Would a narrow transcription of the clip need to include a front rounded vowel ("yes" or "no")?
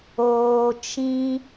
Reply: no